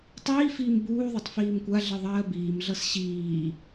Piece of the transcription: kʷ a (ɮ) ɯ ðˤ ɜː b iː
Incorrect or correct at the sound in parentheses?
correct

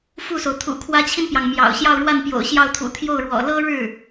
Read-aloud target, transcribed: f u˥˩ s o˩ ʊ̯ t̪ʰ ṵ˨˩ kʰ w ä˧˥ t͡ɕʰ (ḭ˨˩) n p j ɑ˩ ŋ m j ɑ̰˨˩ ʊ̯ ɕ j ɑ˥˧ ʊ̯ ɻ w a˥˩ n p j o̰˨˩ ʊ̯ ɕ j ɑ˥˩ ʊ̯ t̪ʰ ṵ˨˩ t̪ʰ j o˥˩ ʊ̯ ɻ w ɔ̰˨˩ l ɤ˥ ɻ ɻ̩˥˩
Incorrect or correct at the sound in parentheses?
incorrect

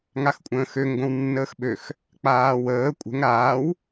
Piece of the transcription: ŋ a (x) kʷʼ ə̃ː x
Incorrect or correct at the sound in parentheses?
correct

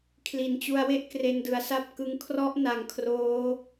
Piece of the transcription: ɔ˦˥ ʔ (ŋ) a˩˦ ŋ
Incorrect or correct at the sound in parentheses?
incorrect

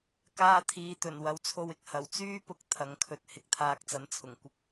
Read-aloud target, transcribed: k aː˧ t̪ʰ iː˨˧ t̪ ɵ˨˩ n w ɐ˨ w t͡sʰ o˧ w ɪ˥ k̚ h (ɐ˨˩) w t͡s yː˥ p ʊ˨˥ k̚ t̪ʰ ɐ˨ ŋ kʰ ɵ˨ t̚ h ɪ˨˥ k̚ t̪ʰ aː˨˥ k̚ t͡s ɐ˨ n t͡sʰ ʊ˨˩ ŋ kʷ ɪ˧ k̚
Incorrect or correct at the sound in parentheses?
correct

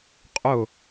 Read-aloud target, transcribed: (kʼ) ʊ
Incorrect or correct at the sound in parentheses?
incorrect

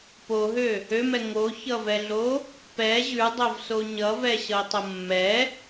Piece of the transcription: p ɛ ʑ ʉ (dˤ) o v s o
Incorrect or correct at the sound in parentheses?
correct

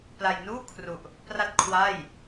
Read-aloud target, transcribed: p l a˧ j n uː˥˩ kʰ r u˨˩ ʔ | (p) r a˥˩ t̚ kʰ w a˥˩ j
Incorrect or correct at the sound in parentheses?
correct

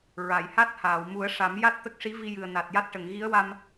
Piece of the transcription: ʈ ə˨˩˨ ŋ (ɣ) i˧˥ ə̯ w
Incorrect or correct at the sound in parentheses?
correct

